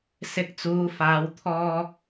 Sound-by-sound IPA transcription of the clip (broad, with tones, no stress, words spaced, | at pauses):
sɪ˨˥k̚t͡suː˨˧faː˨˧w t̪ʰɔː˧